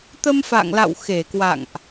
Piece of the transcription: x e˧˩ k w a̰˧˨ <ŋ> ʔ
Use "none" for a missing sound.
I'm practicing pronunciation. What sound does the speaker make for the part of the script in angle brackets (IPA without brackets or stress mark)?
ŋ